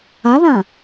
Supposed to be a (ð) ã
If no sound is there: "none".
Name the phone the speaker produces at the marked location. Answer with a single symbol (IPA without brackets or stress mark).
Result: ð